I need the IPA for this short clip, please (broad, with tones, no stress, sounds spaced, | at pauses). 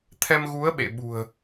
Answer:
t̪ʰ ɛ˧ m ɣ u˨˦ ə̯ ɓ ḛ˧˨ ɓ ṳ˨˩ ə̯